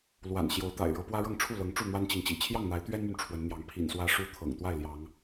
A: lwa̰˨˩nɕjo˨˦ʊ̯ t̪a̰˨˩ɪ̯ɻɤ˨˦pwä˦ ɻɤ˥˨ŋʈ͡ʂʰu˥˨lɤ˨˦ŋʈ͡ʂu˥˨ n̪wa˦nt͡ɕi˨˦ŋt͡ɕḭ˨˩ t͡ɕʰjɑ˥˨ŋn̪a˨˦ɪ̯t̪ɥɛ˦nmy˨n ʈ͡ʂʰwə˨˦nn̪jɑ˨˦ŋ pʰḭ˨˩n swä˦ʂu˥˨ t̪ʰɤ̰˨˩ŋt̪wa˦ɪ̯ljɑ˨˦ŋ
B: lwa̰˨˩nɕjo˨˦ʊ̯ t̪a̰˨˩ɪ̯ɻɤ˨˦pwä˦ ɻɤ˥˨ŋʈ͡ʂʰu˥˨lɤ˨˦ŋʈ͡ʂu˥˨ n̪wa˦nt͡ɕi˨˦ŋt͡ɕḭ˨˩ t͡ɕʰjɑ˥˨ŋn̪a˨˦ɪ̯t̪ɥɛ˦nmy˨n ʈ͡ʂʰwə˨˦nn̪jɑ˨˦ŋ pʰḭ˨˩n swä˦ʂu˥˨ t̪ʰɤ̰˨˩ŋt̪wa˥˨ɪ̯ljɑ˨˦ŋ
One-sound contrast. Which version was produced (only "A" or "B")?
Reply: B